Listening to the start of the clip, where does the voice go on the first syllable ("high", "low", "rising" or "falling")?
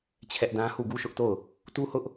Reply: high